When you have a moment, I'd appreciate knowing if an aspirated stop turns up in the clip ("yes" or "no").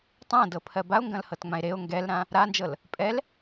yes